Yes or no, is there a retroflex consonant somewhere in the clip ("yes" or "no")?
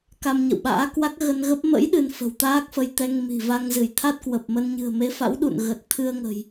no